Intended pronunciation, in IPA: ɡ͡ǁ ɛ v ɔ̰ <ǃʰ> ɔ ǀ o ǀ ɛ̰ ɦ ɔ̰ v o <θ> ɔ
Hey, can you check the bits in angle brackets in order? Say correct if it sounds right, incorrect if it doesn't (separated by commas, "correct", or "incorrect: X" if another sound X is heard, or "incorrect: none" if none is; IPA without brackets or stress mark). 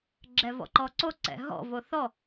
incorrect: ǃ, correct